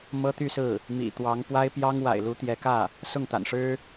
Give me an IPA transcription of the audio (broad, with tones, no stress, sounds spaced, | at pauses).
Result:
m ɤ˥ t̪ y˥˧ s ɹ̩˥˩ | m ḭ˨˩ t̪ w ɑ˧˥ ŋ p w a˥ ɪ̯ p j ɑ˥ ŋ w a̰˨˩ ɪ̯ l u˧˥ t̪ j ɛ˧˥ k ä˥˩ | s ʊ˥˩ ŋ t̪ a̰˨˩ n ʂ ɻ̩˥